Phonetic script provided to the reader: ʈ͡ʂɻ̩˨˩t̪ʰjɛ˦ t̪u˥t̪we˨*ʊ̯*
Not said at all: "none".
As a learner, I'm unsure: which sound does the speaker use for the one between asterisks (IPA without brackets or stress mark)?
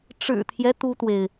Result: ɪ̯